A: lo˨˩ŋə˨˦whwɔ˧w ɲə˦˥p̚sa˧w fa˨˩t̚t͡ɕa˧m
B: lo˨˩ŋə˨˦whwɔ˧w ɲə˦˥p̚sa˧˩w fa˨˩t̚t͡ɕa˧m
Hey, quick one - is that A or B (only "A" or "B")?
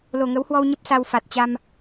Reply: A